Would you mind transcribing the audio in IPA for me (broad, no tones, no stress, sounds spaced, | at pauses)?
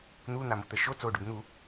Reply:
n̪ uː n̪ a m o t̪ ə ʃ o t͡s o ɖ ø b n̪ u